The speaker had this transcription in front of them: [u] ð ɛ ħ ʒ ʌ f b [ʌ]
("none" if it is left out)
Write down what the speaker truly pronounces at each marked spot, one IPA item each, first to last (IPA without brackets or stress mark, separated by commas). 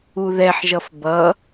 u, ʌ